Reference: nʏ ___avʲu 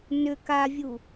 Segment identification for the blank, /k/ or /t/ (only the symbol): k